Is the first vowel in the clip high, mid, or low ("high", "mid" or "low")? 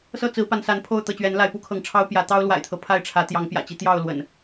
mid